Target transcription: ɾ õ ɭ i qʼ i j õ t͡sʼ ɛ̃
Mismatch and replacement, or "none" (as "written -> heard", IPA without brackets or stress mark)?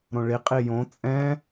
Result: none